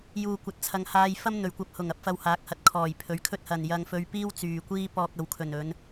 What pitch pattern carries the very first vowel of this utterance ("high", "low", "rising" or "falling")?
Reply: low